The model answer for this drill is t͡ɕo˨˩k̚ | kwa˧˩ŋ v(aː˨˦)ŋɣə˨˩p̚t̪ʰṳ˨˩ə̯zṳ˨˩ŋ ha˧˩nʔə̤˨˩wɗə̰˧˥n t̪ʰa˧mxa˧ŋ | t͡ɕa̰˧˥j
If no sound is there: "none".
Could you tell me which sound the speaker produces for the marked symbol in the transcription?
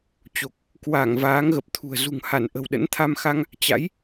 aː˨˦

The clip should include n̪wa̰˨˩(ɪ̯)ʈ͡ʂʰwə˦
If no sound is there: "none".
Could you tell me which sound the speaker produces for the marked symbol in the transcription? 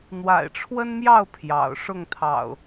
ɪ̯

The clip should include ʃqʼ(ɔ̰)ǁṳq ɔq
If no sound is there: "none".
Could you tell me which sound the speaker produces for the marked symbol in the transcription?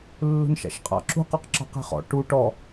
ɑ̰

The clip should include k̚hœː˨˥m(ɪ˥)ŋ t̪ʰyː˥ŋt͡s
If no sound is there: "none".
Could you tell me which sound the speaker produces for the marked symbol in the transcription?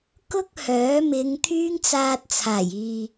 ɪ˨˧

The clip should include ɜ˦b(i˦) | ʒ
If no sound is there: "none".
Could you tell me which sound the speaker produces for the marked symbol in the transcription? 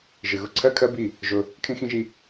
i˦˨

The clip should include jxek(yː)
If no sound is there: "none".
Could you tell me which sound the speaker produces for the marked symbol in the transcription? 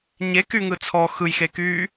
yː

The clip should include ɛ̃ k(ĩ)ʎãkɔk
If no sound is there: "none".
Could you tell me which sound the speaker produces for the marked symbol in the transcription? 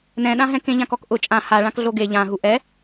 ẽ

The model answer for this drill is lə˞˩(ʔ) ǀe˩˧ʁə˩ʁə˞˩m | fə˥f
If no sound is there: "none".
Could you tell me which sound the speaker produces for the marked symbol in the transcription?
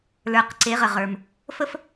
q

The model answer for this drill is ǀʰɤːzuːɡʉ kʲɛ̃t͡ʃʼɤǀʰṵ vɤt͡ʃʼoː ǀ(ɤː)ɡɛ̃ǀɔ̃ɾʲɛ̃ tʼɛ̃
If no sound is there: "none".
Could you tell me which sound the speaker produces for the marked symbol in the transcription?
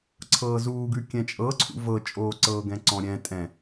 ɤː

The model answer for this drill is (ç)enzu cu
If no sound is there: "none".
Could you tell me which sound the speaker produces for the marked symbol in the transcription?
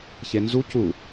ç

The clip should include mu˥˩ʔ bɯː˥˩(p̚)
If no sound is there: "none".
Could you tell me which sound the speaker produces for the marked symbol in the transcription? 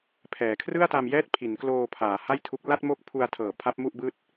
t̚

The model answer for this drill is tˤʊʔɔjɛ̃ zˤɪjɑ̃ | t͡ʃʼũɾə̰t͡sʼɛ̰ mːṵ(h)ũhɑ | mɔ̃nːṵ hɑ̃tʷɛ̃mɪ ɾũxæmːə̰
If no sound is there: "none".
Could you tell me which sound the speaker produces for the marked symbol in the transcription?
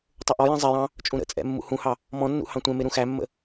h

